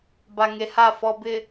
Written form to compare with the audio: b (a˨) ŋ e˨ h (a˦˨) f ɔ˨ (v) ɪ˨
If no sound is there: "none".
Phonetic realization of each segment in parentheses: a˨, a˦˨, b

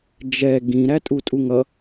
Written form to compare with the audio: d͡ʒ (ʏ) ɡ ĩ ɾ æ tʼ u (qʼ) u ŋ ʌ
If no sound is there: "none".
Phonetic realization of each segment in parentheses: ɛ, tʼ

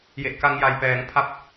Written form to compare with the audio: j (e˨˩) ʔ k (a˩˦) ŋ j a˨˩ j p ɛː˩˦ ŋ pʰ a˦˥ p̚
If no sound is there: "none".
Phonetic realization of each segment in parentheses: e˨˩, a˧

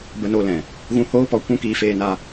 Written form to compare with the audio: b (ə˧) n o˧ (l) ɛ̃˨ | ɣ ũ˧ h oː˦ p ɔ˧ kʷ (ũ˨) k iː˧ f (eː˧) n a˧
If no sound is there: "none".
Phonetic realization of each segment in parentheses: ə˧, l, ũ˦, eː˧

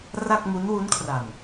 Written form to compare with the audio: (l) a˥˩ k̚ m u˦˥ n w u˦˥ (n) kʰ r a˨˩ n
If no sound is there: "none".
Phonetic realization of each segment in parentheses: r, n

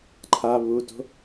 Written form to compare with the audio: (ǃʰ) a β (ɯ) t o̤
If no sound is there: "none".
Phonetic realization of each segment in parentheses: ǃʰ, u

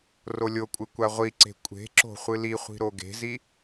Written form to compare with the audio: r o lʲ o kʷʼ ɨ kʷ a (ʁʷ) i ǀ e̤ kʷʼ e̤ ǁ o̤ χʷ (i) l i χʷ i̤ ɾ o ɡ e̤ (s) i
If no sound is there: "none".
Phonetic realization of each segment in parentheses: ʁʷ, ɨ, z

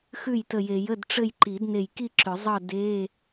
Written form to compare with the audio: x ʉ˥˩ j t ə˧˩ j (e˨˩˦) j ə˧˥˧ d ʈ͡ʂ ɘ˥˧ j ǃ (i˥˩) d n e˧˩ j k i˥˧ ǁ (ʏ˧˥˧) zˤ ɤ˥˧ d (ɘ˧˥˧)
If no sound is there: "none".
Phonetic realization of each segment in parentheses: e˨˩˦, i˨˩˦, ʏ˨˩˦, e˧˥˧

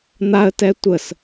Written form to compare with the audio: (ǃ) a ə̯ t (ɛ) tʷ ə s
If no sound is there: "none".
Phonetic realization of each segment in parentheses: n̪, ɛ

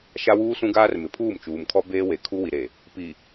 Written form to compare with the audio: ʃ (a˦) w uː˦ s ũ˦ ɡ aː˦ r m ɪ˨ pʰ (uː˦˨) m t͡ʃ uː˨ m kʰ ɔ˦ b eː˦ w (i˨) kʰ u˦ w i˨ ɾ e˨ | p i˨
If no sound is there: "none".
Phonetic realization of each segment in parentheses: a˦, uː˦˨, e˨

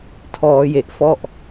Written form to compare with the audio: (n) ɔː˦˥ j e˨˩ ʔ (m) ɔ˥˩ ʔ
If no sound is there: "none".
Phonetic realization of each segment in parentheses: tʰ, f

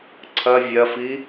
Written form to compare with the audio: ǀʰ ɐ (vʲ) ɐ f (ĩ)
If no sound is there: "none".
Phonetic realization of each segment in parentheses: vʲ, i

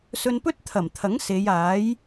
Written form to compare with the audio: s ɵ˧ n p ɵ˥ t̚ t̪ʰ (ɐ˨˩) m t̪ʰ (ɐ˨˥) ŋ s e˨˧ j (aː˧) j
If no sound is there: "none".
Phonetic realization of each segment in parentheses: ɐ˨˩, ɐ˨˥, aː˨˥

